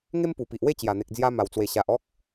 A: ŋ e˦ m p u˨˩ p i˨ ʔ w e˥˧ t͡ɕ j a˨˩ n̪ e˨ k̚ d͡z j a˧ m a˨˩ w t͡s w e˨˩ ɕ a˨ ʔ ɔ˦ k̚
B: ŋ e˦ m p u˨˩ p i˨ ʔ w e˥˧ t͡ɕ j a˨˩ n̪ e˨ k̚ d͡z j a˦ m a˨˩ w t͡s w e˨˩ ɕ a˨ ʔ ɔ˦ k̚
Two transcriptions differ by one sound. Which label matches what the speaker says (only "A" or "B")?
A